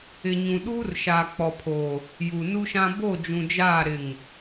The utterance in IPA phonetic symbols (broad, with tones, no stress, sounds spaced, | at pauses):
ɪ˨ ɲ ũ˨ ɗ uː˦ r ʃ aː˨ k͡p ɔ˨ pʰ oː˨ | j u˨ n u˦ ʃ ã˦ b o˦˨ d͡ʒ ũ˨ d͡ʒ aː˦˨ ɾ ɪ˦˨ ŋ